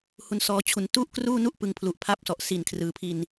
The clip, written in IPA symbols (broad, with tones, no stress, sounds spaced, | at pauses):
h u˧ n s ɔː˦˥ t͡ɕʰ u˨˩ n t u˥˩ ʔ k r uː˥˩ n u˥˩ ʔ p ɯ˧ ŋ pʰ l u˨˩ ʔ pʰ a˦˥ p̚ s ɔ˨˩ ʔ s i˨˩ n kʰ r ɯː˩˦ pʰ i˧ n